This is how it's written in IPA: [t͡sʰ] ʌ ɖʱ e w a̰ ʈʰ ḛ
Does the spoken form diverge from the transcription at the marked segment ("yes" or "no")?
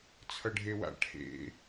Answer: no